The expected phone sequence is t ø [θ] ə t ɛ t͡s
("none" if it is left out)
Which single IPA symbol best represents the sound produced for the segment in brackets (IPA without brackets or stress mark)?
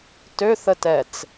θ